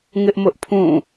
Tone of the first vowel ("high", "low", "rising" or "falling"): high